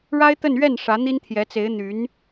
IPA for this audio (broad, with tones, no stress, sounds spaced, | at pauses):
ɻ a˥ ɪ̯ t̪ ə˥˧ n ɥ ɛ˥˩ n ʂ ä˧˥ n̪ i˥ n t̪ʰ j ɛ˧˥ t͡s e˧˥ ɪ̯ n̪ y˧˥ n